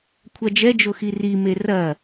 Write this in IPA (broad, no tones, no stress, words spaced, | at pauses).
kʷʰad͡ʒɛd͡ʒo xirime rɐ